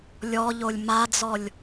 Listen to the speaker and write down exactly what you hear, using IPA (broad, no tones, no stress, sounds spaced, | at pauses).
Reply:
lʲ ɔ ʎ o lʲ m a d͡z ɔ lʲ